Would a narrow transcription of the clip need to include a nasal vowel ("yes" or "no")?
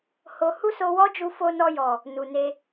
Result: no